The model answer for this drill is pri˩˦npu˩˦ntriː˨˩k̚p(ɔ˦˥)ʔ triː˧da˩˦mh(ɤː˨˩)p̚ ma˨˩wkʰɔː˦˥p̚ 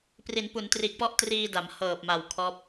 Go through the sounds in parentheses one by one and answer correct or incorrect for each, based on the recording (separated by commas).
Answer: correct, correct